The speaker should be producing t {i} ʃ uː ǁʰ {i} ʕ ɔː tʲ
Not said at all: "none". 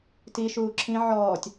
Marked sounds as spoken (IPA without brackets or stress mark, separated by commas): i, ĩ